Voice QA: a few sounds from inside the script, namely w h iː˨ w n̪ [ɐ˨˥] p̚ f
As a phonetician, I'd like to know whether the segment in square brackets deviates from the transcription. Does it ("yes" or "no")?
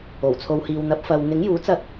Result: no